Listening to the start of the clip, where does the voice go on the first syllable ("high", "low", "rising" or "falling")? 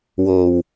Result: low